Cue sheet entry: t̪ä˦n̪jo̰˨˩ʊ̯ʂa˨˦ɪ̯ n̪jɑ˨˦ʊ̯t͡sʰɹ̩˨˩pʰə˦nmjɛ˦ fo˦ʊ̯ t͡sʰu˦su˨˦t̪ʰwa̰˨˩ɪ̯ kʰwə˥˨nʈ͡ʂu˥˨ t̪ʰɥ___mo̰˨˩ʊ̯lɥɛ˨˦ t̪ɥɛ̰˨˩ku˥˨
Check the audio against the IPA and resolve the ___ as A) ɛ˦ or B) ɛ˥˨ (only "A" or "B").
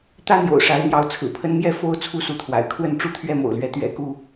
A